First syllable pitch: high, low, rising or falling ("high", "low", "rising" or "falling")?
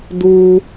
low